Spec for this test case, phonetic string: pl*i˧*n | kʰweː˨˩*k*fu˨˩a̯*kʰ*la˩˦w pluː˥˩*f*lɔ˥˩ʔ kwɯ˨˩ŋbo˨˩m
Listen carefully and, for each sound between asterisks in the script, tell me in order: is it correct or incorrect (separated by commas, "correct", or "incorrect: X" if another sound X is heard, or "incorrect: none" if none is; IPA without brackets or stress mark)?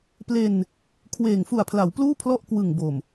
incorrect: e˧, incorrect: ŋ, incorrect: pʰ, incorrect: pʰ